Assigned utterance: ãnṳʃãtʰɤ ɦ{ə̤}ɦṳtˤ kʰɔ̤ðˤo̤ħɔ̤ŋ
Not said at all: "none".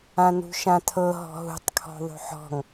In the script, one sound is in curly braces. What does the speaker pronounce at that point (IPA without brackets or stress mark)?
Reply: ɔ̤